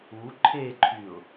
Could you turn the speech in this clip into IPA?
u ǃʰeǃʰyʊ̯

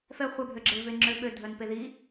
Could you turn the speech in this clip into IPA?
fɛ χʷɛbʱøɡ͡ǁeve ŋ͡ǁøɓø dʱœnpeði

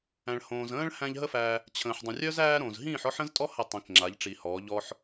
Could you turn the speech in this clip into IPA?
æ̃˨ɭhõː˨zə̃ː˦ɭ hæ̃˧ʎ ɦə˦fæ˧ | t͡ɕʰə̃ː˨ħdˤə̃˨rʲœ˦z æː˦ɾõ˨z ɦĩː˦˨ħɔ˦ħə̃˦ztʼɔ˦ hə˦˨tˤĩ˨kŋ͡ǁa˨˦ʎ ʈ͡ʂi˨hɔː˨˦ ʎɔ˦ħ

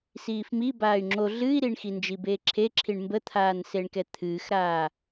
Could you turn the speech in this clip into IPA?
siːfmi baːy̯ŋ͡ǁo ɮɨːi̯ɾiɳxind͡ʒi beːǁʰeǁʰiɳ mbət̪ʰaːnseɳkɛ t̪ʰɨːxɾaː

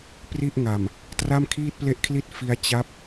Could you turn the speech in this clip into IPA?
pri˥˩ʔŋa˨˩m | tra˥˩mkʰiː˥˩t̚ple˥˩ʔkʰli˥˩t̚ fi˦˥a̯ t͡ɕa˦˥p̚

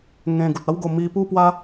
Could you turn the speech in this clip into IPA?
ŋẽ˧ ɡu˨t̚a˦wɡo˧ mi˧pu˥˧pwa˦

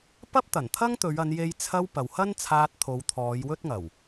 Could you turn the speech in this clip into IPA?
pɐ˥p̚t̪ɐ˨˩nt̪ʰɐ˥ŋt̪ɵ˨˧ɥ ɐ˨˧nje˧j t͡sʰɐ˧w pɐ˨whɐ˥nt͡sʰaː˧t̚t̪ʰo˨˧w t̪ʰɔː˨˧jwɵ˥t̚ŋɐ˨˩w

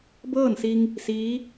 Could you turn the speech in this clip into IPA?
bɤː˥˨nsi˧ŋ | siː˧˥

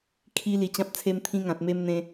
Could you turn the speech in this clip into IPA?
kʰi˧ li˧t͡ɕã˦p̚t͡sʰe˦m t̪ʰĩ˦ŋã˨t̚me˦mn̪ẽ˧

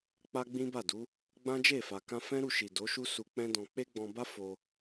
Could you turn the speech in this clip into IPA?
k͡pa˦ɡ͡bĩ˦ba˦˨du˨˦ | ɡ͡bã˦d͡ʒe˦˨fa˨ kã˧ fɛ̃˦ɾu˦˨ʃi˨ do˨˦ʃu˦ su˧k͡pɛ̃˦dɔ̃˧ k͡pe˦ɡ͡bɔ̃˧ba˦ fo˧

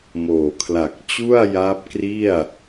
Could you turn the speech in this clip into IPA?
moː˨˩kʰla˨˩k̚ t͡ɕu˥˩a̯ja˦˥p̚kri˥˩a̯

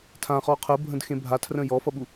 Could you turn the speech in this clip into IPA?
tʰãχɔ qʰəbʱə̃dxẽ bʱatʰrə̃ jɔfʌɓu

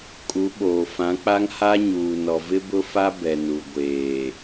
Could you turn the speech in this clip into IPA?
kʼu˨˦ɓoː˨ fã˨˦k͡pa˦ŋ ha˦ɲuː˨ nɔ˨vɪ˦bʊ˦ fa˦ bɛ˨nu˨ ɡʷeː˨

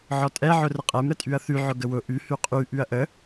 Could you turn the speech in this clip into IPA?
ʕɔtʼɛ ʕʊrəqʼɛm ɾətʼyɐ̯θy ʕʊɡəwʊ ʔy hyqʼy ʔyɐ̯ʔə

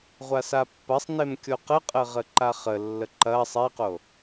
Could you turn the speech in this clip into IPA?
ʁʷasapːɐsˤnem kʲoqəqʼə ʁəǃaχəlːə ǃɐ sˤeqo

